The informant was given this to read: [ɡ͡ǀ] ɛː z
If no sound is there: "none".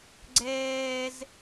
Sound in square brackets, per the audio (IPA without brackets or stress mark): ɡ͡ǀ